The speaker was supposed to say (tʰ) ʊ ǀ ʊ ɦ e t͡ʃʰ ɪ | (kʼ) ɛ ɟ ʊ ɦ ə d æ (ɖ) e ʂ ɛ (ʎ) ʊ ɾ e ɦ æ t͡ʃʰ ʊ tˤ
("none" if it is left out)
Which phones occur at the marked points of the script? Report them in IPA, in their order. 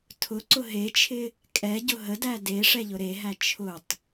tʰ, kʼ, d, ʎ

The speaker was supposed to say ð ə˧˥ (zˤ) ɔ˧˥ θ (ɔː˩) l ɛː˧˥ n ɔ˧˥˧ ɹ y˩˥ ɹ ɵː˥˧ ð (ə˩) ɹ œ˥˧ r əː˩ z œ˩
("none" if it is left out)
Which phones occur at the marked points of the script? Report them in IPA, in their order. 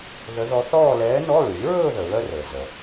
ð, ɔː˥˧, ə˩

